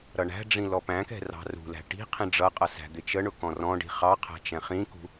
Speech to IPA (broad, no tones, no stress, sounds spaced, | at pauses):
ɾ ʌ ɳ æ̤ ɖ͡ʐ ĩ l ɔ p æ̃ k ɛ̤ r ɑ̤ r ṳ l æ̤ ʈ i̤ qʰ ĩ ɖ͡ʐ ʌ qʼ ʌ s æ̤ d̪ ɪ t͡ʃ ə ɳ ʊ k ɔ̃ r ɔ̃ ɖ i̤ χ ɑ qʰ æ̤ t͡ʃ ɛ̃ χ ĩ k ṳ